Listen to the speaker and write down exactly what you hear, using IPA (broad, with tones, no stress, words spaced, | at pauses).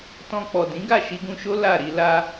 tɔ̃˧ k͡pɔ˨dĩ˨˦ ɡa˦˨ʃi˧ɡũ˧ʃo˦ la˦˨ ɾi˧ la˧